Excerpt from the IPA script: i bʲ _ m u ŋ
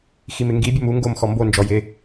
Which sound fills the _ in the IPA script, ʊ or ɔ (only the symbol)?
ʊ